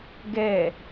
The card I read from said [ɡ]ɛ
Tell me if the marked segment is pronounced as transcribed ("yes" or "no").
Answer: yes